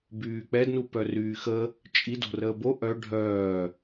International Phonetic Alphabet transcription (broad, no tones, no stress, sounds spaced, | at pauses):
b yː k͡p ɛ d n u p œ r yː x ə | t͡ʃʼ i d o̤ r əː b o ʔ œ ɖʱ œː